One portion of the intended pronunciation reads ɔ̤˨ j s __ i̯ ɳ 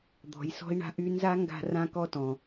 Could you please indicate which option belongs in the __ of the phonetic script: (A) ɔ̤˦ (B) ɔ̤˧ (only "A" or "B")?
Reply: A